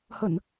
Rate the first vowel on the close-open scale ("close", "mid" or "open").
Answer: mid